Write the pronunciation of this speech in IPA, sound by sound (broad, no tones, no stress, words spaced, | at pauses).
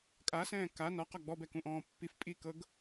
kʼasɛ̃ː ka nɒqɒ ɡ͡bɔbɛkũʔɔ̃ː pːif pʼikɤɡ